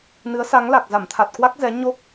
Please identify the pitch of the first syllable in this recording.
rising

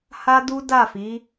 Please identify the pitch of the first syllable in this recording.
high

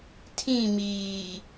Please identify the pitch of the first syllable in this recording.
falling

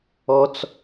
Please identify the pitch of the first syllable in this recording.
low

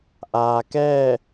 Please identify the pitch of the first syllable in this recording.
low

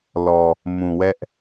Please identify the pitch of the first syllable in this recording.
low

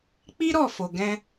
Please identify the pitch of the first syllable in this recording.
high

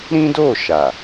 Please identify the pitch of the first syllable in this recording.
high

